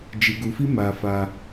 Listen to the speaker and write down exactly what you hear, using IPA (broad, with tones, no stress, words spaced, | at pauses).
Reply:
d͡ʒi˧ɡu˧fi˦ ma˧ fa˧